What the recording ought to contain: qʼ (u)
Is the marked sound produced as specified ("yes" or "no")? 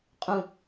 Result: no